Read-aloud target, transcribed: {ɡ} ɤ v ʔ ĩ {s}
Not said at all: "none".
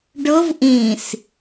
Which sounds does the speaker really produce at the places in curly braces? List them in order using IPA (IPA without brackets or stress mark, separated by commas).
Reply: ɖ, s